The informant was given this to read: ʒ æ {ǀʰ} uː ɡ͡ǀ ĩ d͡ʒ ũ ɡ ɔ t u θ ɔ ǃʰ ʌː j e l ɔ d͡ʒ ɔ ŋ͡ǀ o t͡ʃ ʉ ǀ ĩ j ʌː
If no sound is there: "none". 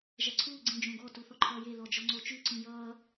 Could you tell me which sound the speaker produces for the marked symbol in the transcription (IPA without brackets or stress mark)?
ǀʰ